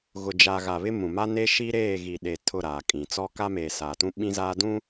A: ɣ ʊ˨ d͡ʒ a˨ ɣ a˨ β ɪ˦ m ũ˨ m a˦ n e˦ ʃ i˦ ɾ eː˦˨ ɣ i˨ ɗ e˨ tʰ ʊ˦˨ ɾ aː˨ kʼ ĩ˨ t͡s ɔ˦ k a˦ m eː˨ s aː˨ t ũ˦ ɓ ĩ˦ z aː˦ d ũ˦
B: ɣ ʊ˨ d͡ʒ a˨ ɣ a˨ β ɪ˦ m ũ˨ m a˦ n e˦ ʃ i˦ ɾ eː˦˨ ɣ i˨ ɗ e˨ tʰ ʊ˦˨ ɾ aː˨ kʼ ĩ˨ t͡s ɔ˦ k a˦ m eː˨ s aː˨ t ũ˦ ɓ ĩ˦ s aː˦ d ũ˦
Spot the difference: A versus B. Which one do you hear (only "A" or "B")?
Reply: A